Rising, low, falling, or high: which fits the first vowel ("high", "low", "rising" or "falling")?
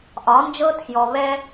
rising